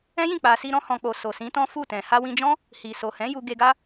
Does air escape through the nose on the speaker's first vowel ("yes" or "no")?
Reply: yes